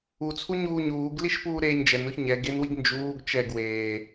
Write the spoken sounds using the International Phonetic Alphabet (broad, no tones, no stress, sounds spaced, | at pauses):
u t͡sʰ u ɲ uː ɲ uː ɡ l i ʃ p uː ɾ eː ɲ d͡ʒ ɛ n o ç ɲ ɛ ɡ e n w i ɡ n d͡ʒ uː ɡ t͡ʃ ɛ ɡ w eː